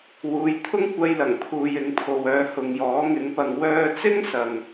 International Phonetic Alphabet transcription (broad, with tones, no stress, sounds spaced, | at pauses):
w uː˨˧ j t̪ʰ ʊ˥ ŋ kʷ ɐ˧ j l ɐ˨˩ ŋ pʰ uː˨ j ɪ˨˧ ŋ pʰ o˨ w œː˨˧ h ʊ˨ ŋ j ɔː˨˥ ŋ ɪ˨˥ ŋ p ɐ˨˧ ŋ w œː˧ t͡s ɪ˥ ŋ s ɐ˨ ŋ